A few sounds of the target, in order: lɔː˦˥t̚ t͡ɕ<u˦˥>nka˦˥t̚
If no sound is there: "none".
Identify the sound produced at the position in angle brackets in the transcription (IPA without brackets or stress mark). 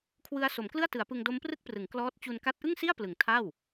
u˧